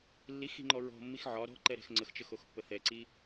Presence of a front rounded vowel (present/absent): absent